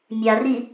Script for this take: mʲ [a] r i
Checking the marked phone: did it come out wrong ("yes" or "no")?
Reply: no